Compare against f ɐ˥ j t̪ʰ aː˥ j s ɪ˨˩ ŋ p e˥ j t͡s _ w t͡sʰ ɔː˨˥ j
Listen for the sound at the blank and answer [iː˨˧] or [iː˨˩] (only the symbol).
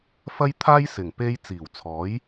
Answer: iː˨˩